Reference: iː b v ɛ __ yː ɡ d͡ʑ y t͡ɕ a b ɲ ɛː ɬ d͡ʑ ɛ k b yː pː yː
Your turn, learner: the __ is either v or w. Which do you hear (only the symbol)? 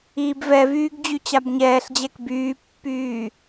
v